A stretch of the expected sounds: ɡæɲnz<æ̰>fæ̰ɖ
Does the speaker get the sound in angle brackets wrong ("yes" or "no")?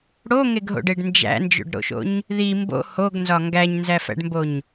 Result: yes